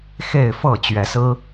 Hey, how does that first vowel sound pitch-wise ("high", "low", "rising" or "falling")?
falling